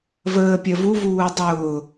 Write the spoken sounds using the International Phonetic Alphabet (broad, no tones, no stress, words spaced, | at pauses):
vəː pʲɜvu vuːdˤʊː